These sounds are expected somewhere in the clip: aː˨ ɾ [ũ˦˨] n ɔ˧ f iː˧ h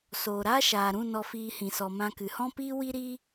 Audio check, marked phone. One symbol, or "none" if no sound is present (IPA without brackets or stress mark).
ũ˦˨